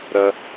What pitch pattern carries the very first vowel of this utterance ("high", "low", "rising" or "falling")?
low